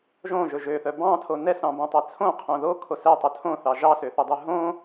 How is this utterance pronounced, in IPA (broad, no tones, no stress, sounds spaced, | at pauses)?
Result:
ʒ õ ʒ ɵ ʒ ø θ œ b ɑ̃ tʰ o n ɛ s ɑ̃ b õ tˤ ɛ t͡sʰ õ qʰ õ ð o kʰ o s ɛ tˤ œ tʰ õ θ ɑ ʒ ɑ s ø θ ɵ dˤ ø ɦ õ